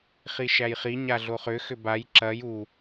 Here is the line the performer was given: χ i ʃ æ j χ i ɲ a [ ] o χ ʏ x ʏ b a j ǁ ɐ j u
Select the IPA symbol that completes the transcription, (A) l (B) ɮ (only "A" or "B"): B